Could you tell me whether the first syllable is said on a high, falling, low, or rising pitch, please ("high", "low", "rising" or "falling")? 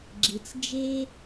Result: low